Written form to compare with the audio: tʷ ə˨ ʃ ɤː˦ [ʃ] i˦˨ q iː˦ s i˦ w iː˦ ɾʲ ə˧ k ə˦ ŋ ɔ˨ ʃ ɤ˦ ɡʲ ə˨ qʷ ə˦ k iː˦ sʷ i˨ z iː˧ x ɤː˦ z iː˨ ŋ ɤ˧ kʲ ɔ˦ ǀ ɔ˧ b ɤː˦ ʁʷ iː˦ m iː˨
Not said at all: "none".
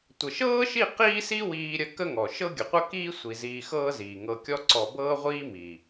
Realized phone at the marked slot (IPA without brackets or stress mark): ʃ